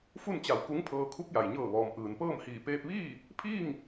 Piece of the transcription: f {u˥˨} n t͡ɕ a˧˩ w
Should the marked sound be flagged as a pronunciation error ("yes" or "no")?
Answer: no